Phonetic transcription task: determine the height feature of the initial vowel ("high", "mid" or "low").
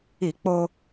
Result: high